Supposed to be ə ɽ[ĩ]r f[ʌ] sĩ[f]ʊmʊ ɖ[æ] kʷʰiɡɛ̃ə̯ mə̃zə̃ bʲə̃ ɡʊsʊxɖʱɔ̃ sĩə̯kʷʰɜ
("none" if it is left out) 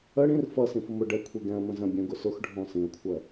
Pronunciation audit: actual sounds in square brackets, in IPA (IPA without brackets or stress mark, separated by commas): ĩ, ʌ, f, ɛ